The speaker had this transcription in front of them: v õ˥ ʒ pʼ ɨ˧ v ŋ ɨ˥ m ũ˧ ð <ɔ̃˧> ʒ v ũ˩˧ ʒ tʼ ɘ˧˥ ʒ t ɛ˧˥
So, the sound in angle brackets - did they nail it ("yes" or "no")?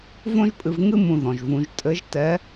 no